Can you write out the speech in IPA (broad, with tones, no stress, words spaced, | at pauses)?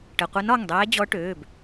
ʈə˩˧˩qʷɛ˧˥n ɒ˩˧˩ŋdˤɛː˧˥ d͡ʑɔ˧˥ʈøː˩˧˩b